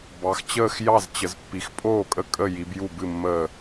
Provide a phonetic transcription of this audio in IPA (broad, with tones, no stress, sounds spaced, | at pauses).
b ɑ˨˦ x t͡ɕ əː˥˨ x j ɑ˥˨ z t͡ɕ ə˨˦ z pː i˨˦ x pʼ oː˥˨ kʼ ə˥˨ kʼ ə˥˨ j i˨˦ b j u˥˨ b ɨ˥˨ mː əː˥˨